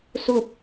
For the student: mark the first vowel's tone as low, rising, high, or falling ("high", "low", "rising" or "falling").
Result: falling